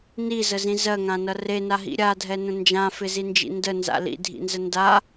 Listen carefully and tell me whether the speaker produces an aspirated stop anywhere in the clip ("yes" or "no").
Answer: no